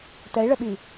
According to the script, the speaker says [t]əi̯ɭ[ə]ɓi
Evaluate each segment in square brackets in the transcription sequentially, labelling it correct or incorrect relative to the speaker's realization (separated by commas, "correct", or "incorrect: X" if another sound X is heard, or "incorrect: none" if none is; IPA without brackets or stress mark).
correct, correct